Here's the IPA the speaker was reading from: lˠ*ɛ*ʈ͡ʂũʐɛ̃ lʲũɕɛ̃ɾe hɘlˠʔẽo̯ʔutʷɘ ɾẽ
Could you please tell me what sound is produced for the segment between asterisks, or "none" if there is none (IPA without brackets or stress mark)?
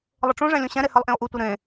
ɘ